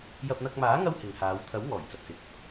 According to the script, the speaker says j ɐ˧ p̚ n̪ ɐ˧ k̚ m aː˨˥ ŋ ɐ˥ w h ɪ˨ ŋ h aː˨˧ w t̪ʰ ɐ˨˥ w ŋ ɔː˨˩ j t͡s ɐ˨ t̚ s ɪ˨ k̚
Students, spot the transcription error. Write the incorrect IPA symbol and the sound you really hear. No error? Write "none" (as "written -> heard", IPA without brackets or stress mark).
none